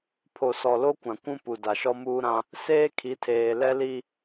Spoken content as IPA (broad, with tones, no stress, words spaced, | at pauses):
pʰo˨sɔ˨lo˦kʷã˨ kʷũ˦pu˨da˨ʃɔ˦ muː˦ɾã˦ | seː˦kʰi˨˦tʰeː˨ lɛ˦li˦